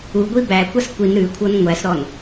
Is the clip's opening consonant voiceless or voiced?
voiced